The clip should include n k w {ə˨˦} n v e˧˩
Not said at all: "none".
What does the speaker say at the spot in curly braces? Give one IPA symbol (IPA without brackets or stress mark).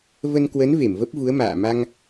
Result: ə˨˦